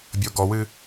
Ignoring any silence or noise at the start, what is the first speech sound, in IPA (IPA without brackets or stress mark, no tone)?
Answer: bʲ